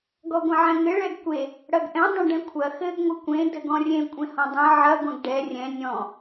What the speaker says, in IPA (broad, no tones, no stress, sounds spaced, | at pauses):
ɡ ɔ ɡʷ ɐ̃ ʕ ɛ̃ ŋ ɘ ɭ ɛ ɡ kʷ e | ɽ ɐ ɡ ʔ ɛ̃ dˤ ɐ̃ ɖ ɛ̃ kʷʰ ɐ x ɘ ɡ ŋʷ ɘ kʷ ẽ d ɘ ɡ ɔ̃ rʲ ẽ kʷʼ ẽ h ɔ̃ dˤ ẽ ʕ ɐ ɡʷ ɛ̃ ɡ ɖ ɛ rʲ ɛ̃ nʲ ɔ̃